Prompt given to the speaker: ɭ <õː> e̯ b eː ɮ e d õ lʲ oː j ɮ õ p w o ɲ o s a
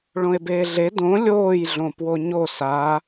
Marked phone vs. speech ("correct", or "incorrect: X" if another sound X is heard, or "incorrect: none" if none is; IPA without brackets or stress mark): incorrect: õ